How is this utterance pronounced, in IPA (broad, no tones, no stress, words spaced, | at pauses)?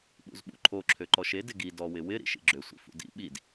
ɓṵzɓṵǃʰo ǁʰøǃɔʃe dɪɡi dɔwɪwɪ ɾḭʃḭɡ͡ǁø sʷḭfṵdḭ ɓid